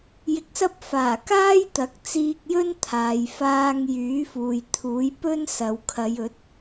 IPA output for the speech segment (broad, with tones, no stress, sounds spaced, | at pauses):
j ɪ˧ k̚ s ɐ˥ p̚ f aː˨˩ k aː˥ j t̪ ɐ˨˥ k̚ t͡s iː˧ k̚ j ɵ˥ n t̪ʰ aː˨ j f aː˧ ŋ j yː˨˥ f uː˨ j t̪ʰ uː˨˥ j p ɵ˥ n s ɐ˨ w kʰ ɐ˨˧ j ɵ˨˥ t̚